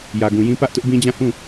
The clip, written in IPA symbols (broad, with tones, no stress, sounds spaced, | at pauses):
j ä˨ ɡ ũ˨ j ĩ˦ p ä˦ ʔ t ʊ˦ ʔ b ĩ˦ d͡ʑ ã˦˨ h ũ˦˨